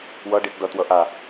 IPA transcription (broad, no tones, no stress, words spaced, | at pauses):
wʌɖit dʌtwʌ ʔa